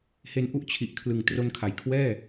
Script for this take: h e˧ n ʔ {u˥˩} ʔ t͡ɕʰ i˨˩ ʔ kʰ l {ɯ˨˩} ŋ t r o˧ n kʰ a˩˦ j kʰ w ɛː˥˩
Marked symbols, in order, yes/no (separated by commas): yes, yes